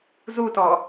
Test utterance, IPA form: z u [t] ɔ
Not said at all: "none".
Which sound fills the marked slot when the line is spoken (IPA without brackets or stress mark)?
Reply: t